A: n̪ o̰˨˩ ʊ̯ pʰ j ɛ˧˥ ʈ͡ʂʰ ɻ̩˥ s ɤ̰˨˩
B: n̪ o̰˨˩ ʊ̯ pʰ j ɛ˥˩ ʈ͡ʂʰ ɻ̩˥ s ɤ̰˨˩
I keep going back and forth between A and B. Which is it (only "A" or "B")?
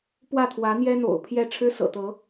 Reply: B